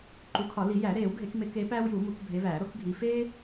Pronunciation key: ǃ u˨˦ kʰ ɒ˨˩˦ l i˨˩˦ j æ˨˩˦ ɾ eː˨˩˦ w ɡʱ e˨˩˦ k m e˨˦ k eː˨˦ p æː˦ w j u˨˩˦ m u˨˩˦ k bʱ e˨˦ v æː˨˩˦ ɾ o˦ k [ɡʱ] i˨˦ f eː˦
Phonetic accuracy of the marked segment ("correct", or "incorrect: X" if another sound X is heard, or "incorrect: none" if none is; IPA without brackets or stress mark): correct